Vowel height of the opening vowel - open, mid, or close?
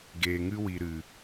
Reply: mid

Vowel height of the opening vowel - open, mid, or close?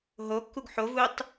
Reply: mid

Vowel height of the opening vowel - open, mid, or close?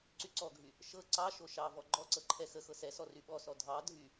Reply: close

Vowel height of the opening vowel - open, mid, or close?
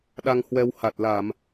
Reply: open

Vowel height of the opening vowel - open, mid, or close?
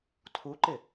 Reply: close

